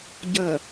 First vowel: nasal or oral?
oral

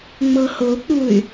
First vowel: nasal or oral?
oral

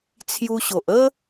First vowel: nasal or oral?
oral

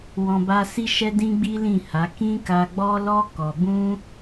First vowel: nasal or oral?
nasal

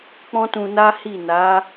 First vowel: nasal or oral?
nasal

